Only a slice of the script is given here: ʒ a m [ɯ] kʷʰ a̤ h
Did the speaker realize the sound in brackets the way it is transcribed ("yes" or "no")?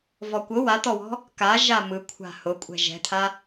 yes